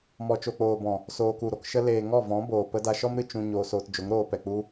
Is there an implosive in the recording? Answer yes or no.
no